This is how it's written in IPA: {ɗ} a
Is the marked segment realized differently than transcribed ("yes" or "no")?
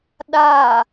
no